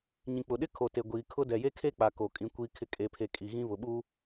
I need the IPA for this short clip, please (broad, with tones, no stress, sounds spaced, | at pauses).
ɲ ĩ˨ k͡p ʊ˨ ɗ ɪ˦ kʰ o˨ t e˨ ɡʷ iː˨ kʰ ʊ˦ d ɛ˨ j e˦ kʰ e˦ k͡p a˨ k o˨ kʼ ĩ˨˦ kʷ iː˦ kʰ ɪ˦ kʼ e˨ pʰ e˨ kʼ i˨ ɣ ĩ˦ β ʊ˨ ɓ u˦